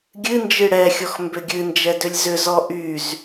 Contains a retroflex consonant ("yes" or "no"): yes